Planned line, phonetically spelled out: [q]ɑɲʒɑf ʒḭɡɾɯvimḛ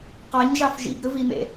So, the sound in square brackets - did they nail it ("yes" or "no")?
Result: yes